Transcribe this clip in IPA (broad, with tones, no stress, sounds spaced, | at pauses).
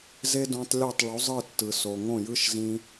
z e˦ d õ˧ tˤ lʲ o˦˨ tˤ ɭ u˨˦ zˤ ɯ˦˨ tː ɯ˨ s o˨ ŋ õ˦˨ j ɯ˦ ʃ z ĩ˦